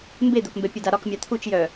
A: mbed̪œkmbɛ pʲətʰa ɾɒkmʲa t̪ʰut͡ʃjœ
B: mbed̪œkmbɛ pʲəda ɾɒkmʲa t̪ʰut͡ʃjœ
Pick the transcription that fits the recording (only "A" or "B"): B